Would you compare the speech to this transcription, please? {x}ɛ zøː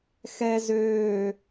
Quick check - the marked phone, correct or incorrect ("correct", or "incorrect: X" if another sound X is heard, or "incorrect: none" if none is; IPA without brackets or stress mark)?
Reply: correct